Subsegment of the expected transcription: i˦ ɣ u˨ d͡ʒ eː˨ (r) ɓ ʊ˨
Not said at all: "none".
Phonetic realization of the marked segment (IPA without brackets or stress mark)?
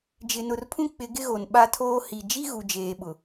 none